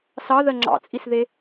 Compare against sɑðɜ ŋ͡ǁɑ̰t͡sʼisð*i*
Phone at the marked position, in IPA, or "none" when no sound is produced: e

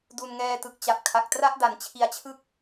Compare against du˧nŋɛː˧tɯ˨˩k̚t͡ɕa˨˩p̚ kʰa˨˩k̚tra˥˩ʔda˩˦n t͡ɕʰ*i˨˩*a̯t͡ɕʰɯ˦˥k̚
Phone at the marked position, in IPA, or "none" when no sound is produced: i˨˩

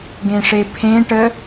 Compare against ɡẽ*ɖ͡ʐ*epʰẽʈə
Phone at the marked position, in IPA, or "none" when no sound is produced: ʂ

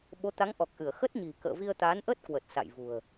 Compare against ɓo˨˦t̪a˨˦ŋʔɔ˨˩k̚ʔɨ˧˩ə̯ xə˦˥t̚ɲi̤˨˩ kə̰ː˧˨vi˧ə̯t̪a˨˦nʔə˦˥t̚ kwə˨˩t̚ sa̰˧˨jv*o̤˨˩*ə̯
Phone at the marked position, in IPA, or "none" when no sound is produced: ṳ˨˩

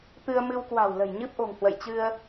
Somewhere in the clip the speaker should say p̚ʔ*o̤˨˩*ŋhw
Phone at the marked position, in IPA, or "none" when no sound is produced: o̤˨˩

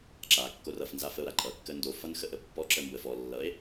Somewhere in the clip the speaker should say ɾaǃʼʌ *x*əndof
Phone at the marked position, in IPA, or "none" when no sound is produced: kː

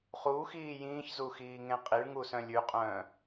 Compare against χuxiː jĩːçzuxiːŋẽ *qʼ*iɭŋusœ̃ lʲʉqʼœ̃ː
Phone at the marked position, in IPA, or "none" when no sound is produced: qʼ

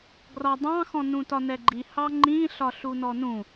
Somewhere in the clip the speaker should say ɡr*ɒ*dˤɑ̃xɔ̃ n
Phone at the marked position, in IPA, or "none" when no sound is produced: ɒ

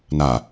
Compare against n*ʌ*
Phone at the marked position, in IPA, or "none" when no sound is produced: a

